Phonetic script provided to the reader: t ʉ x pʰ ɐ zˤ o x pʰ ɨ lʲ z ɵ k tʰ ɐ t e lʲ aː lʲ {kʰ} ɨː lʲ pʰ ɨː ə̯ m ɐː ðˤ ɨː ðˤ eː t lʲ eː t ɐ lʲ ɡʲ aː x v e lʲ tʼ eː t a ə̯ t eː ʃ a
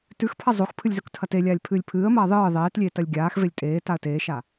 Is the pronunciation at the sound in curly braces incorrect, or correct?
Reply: incorrect